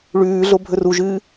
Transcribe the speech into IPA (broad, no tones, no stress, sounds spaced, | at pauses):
ɭ ʉː ɮ o bʱ ɵ r u ʒ ɨː